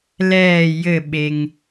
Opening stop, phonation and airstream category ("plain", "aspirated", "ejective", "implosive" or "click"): implosive